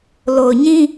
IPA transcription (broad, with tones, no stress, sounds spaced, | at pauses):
l o˨ ʊ̯ ɲ ĩ˦